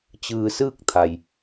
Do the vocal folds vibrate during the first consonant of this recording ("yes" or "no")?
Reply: no